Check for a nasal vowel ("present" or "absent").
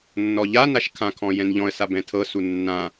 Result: present